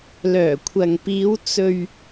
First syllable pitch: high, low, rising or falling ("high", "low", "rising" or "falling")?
low